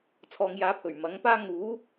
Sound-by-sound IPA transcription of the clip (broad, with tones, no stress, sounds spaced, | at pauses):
t͡sʰ ɔː˨ ŋ j aː˨˥ pʰ ɵ˨˩ ɥ m ɐ˨˥ ŋ p aː˥ ŋ uː˨˥